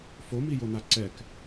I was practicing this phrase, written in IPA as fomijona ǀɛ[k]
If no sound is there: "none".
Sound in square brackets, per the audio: k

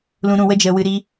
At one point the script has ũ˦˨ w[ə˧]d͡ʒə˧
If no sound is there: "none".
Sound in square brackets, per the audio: ə˦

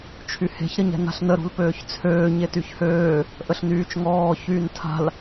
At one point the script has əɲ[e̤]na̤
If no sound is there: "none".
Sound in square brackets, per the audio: ɛ̤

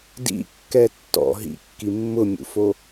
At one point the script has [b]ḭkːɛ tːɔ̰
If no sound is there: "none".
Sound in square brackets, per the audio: d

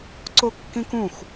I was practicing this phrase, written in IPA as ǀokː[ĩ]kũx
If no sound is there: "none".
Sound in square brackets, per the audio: ĩ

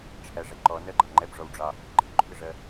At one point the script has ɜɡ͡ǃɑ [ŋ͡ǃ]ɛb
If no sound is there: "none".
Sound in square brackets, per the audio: ŋ͡ǃ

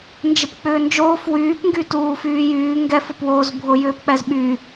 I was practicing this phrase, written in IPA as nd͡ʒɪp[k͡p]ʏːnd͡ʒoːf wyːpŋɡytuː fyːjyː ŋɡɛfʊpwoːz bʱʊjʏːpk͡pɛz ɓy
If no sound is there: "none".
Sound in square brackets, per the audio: k͡p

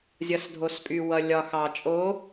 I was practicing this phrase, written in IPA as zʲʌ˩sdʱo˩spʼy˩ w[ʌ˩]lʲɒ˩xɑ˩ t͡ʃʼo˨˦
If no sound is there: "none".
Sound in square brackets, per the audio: ʌ˩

